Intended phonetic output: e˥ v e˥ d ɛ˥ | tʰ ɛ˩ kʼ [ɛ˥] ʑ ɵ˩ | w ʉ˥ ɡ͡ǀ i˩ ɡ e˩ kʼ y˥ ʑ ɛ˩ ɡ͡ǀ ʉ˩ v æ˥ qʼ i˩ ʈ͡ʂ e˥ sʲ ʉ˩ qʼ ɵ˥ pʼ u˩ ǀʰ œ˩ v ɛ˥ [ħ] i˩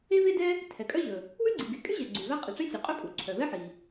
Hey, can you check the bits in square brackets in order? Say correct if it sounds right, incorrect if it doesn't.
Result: incorrect: œ˥, correct

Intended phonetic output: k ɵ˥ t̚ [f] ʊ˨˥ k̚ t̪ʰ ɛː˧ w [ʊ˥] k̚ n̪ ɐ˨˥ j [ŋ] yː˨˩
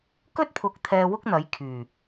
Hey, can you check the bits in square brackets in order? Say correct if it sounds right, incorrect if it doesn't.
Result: incorrect: pʰ, correct, incorrect: kʰ

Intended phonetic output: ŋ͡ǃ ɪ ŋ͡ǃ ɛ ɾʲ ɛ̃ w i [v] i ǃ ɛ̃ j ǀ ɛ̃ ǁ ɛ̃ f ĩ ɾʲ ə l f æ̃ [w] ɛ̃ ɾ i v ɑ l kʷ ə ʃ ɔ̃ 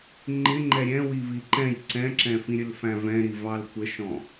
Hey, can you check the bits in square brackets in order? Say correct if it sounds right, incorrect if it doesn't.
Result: correct, incorrect: v

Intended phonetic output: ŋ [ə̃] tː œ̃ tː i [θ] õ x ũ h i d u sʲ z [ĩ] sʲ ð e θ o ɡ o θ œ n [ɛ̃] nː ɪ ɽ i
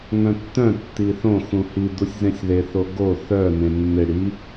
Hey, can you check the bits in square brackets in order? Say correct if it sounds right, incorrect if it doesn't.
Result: incorrect: œ̃, correct, incorrect: ẽ, incorrect: ẽ

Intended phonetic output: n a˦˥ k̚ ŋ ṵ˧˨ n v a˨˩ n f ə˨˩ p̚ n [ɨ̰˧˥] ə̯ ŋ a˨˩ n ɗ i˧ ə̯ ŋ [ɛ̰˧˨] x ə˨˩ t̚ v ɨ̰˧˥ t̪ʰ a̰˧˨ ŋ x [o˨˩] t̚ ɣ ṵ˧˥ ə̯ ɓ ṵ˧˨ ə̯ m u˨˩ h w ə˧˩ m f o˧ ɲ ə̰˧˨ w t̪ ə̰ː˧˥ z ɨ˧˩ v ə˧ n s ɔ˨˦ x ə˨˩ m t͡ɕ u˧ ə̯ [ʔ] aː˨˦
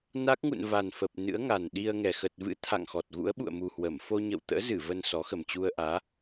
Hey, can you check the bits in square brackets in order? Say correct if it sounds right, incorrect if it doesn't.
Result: correct, incorrect: ɛ˨˩, incorrect: ɔ˨˩, correct

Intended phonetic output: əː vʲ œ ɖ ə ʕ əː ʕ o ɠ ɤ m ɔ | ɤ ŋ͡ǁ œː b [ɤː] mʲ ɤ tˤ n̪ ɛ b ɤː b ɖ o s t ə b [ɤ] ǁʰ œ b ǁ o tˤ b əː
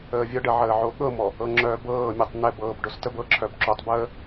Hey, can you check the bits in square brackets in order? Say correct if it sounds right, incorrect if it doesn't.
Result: correct, correct

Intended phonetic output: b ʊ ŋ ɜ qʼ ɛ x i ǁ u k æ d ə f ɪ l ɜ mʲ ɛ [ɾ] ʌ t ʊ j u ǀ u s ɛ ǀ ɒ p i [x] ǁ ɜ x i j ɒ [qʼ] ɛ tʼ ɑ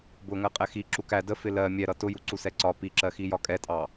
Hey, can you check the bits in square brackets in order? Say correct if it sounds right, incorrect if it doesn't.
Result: correct, incorrect: none, incorrect: kʼ

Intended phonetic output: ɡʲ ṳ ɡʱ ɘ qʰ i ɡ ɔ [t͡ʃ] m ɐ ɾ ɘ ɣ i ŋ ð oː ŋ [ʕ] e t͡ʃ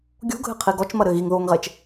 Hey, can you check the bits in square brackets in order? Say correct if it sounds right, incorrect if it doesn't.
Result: correct, incorrect: ʁ

